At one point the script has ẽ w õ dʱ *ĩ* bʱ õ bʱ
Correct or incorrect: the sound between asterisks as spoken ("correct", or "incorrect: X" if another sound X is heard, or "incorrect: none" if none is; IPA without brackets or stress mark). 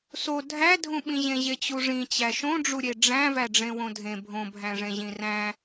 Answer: incorrect: ẽ